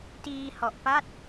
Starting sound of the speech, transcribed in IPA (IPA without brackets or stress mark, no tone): t